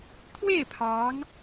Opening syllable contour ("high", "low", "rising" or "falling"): falling